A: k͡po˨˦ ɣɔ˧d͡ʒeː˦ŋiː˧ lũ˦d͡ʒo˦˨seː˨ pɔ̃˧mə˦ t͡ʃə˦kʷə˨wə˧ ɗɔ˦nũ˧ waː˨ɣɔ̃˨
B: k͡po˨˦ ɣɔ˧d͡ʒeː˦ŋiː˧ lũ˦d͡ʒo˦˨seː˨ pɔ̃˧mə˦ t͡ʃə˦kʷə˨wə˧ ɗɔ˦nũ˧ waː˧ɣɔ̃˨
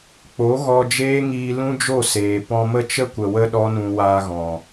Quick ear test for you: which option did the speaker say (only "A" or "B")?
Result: B